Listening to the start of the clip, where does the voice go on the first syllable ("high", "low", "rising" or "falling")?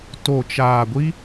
low